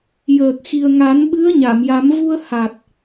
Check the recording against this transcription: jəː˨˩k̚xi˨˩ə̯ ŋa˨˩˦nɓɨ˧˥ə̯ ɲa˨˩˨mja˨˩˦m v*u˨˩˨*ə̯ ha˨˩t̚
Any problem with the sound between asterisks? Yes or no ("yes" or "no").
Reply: yes